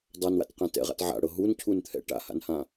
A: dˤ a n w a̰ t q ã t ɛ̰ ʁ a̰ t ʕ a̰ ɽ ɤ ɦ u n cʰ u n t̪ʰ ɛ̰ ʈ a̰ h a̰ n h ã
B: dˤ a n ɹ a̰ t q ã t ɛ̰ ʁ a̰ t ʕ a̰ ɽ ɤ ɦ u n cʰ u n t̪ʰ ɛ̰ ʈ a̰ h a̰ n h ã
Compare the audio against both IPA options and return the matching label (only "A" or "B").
A